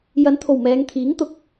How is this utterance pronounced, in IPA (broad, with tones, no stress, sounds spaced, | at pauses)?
j ɐ˨˧ n t̪ʰ o˨˩ w m ɛː˨˧ ŋ t̪ʰ iː˨˥ ŋ t̪ ʊ˨˥ k̚